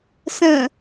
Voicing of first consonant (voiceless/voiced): voiceless